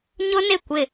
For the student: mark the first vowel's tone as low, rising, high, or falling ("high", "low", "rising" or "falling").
high